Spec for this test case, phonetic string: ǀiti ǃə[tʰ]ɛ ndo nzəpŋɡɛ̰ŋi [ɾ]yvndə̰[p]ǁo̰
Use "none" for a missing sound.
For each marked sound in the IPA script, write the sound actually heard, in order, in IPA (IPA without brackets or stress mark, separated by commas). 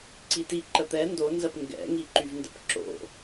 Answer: t̪, ǃ, p